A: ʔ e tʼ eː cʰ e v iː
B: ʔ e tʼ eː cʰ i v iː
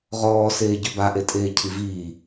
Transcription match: B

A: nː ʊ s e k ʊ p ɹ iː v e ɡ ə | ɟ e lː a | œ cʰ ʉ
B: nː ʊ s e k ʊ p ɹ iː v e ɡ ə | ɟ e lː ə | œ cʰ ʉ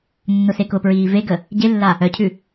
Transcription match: A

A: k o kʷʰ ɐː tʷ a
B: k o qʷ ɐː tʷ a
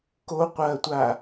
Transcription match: B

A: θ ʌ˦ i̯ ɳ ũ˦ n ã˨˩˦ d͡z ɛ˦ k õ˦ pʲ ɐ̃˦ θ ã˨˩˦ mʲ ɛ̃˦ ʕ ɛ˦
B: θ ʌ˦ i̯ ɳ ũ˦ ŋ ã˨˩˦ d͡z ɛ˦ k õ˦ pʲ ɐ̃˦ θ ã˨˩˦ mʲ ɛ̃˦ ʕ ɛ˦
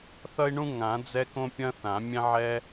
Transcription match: B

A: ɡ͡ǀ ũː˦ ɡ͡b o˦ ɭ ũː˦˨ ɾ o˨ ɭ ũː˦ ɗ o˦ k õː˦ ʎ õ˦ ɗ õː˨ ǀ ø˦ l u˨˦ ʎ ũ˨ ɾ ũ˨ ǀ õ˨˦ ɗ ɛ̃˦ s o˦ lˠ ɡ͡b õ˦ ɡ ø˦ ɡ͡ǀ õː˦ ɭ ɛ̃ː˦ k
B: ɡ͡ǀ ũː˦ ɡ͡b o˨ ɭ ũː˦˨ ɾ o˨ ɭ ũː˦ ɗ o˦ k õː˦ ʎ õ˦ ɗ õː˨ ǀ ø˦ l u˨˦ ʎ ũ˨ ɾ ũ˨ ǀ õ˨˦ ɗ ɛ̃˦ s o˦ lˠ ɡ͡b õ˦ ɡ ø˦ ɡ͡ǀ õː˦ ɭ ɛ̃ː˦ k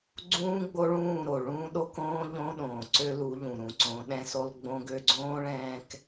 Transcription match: A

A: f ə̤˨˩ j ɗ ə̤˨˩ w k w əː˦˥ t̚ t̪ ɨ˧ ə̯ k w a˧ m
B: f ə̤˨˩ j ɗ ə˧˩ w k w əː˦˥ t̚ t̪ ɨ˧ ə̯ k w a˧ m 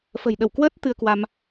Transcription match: B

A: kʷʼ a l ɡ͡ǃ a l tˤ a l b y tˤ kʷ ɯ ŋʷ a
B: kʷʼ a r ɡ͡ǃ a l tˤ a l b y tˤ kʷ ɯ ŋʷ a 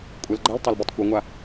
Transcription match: A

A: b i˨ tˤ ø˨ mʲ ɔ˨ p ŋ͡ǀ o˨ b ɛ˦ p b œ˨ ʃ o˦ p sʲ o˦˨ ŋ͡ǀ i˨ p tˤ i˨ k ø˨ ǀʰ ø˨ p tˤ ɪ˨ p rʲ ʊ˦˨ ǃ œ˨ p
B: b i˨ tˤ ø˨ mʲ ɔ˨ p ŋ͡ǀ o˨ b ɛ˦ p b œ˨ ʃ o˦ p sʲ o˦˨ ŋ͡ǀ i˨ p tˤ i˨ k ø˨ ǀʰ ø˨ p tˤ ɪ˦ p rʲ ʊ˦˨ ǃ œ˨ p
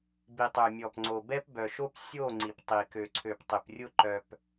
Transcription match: A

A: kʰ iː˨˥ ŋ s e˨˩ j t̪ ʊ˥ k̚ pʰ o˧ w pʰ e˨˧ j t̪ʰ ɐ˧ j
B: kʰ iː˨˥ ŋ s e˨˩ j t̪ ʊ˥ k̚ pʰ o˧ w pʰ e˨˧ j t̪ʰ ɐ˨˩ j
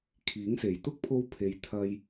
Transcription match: A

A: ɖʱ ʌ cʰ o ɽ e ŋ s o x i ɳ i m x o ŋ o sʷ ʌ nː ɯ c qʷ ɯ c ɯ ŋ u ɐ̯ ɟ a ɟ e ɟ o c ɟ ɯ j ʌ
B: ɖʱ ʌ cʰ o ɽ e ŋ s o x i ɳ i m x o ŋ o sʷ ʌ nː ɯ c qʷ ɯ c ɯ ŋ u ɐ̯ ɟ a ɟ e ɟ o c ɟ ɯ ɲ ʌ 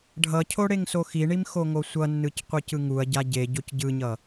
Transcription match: B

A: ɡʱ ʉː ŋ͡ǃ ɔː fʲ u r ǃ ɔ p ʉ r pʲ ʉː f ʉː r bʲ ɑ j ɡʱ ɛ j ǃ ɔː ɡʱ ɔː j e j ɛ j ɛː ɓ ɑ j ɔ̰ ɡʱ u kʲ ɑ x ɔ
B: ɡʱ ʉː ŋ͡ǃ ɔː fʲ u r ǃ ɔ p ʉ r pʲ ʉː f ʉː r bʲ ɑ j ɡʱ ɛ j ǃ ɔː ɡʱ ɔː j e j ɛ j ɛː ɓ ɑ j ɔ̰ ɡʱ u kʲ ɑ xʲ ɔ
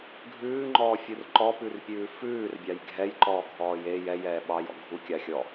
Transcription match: B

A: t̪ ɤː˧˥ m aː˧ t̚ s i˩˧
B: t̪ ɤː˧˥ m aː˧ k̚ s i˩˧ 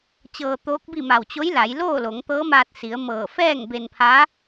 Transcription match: A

